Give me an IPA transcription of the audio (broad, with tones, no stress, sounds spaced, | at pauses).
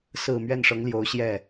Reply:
s ɹ̩˨˩ m ɥ ɛ˥˩ n ʂ ɤ˧˥ ŋ l j o˧˥ ʊ̯ ɕ j ɛ˥˩